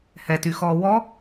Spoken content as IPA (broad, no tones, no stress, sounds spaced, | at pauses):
h ɛ t y x ɔː w ɔ